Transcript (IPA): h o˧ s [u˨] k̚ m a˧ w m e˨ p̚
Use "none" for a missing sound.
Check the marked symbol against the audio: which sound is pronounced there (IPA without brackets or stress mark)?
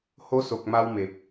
o˨